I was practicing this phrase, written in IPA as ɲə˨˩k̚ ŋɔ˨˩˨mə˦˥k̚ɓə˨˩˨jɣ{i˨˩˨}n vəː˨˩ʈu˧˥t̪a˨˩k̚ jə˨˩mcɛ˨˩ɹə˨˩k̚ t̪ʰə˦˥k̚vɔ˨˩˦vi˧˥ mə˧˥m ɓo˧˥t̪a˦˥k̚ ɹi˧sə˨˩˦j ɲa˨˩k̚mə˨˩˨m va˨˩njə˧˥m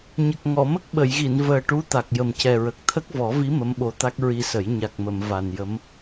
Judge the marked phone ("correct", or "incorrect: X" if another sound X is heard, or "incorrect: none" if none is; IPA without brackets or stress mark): correct